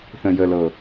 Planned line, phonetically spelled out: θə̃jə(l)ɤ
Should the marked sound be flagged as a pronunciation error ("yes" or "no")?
no